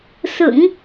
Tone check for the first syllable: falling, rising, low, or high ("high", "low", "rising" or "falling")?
low